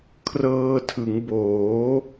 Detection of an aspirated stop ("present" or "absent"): present